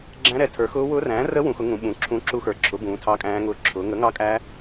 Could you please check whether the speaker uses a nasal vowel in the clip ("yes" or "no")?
yes